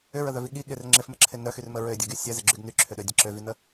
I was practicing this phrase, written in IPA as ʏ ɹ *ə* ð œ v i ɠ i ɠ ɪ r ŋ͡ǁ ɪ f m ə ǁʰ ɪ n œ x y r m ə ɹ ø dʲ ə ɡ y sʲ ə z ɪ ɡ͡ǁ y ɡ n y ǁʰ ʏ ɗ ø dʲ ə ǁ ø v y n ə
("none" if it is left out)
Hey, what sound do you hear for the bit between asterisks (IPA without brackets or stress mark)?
ə